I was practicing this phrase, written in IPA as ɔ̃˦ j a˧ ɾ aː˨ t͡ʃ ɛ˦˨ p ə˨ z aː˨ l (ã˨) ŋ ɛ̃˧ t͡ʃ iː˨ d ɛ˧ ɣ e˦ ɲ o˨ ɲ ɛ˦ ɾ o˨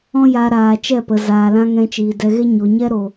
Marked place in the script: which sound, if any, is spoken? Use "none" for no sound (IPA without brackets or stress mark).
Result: ã˦